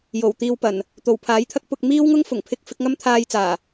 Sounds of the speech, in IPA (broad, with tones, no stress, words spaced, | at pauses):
jo˨˩wt̪iː˧wpɐ˨˩n | t̪o˨˩wpʰaː˨˥jt̪ʰɐ˥k̚ pʊ˧k̚ miː˥wŋʊ˥ŋ fʊ˨˩ŋ pʰɪ˥k̚ fɪ˨˥k̚ŋɐ˥mt̪ʰaː˧jt͡saː˨˩